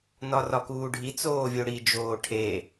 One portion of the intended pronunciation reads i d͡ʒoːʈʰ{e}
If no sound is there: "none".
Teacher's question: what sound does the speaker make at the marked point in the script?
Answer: e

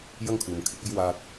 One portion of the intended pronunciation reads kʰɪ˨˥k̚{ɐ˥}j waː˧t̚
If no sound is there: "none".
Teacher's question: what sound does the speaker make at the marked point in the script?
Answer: ɐ˥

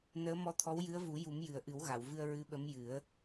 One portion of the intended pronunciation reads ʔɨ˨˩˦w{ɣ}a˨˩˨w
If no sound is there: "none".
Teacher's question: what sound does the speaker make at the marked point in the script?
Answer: ɣ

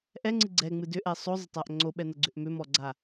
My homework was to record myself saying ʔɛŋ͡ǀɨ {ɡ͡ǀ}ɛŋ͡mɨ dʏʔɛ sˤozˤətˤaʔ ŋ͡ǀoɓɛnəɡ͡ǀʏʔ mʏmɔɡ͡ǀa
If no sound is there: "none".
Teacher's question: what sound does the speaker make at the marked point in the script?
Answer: ɡ͡ǀ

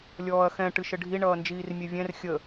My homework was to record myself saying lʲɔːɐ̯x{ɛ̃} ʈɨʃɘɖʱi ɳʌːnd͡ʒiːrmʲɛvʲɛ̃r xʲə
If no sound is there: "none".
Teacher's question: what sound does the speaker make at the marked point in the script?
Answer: ɛ̃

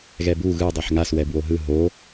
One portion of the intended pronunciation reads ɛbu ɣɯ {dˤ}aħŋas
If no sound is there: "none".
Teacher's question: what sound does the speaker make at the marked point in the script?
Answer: dˤ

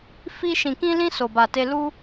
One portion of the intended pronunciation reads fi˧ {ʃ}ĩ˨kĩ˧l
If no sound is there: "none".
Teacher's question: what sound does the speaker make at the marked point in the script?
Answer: ʃ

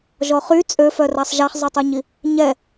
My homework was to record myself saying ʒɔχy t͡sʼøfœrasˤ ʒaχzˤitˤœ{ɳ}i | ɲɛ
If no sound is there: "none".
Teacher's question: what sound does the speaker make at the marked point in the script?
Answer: ɲ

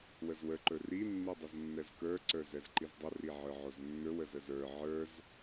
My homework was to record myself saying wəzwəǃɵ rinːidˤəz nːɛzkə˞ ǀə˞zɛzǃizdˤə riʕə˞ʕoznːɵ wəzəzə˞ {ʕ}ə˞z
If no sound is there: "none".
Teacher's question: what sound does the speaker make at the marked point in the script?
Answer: ʕ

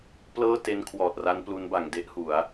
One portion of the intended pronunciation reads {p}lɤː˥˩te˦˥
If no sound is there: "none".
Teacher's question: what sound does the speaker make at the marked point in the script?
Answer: p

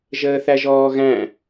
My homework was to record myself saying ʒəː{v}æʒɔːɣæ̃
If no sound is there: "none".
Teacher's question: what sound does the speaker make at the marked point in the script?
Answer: θ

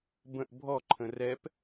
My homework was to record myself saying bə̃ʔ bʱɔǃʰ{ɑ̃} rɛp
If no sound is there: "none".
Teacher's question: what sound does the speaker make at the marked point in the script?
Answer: ə̃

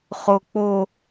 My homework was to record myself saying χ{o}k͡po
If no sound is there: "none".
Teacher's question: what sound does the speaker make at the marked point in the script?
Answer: o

